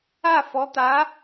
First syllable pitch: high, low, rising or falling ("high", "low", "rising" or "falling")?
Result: falling